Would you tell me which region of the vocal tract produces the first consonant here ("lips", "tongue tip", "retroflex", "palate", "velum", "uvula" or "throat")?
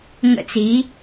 velum